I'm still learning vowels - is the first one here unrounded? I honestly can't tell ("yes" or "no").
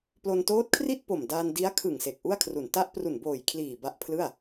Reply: no